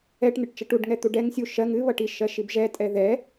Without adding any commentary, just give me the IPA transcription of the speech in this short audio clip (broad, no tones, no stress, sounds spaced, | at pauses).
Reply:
ɛ ʈ n̪ ɨ ʈ t͡ʃ ʌ ʈ u ɖ ŋ ɛ t̪ u ɖ ɛ ŋ sʲ u ʃ ɜ ŋ ɨ β ʌ ʈ i ʃ ɜ ʃ i b ʒ ɛ tʼ ɛ ð ɛ